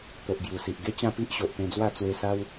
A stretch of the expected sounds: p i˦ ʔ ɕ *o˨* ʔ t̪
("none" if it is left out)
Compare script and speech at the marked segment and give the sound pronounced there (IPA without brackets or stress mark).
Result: o˨